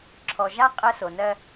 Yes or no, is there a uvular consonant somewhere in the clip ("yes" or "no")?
yes